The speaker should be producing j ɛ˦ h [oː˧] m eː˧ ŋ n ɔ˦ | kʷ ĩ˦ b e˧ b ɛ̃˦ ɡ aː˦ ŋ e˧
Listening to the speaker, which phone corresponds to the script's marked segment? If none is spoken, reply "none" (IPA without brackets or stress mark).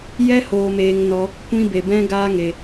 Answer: oː˧